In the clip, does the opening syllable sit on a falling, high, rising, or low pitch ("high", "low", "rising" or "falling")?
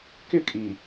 falling